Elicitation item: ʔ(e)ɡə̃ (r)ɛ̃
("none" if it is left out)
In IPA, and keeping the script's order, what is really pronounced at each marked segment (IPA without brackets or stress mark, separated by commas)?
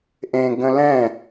ẽ, l